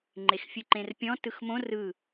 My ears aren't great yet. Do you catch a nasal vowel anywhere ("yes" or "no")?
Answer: yes